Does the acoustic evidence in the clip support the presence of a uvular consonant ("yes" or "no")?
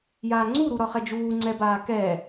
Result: yes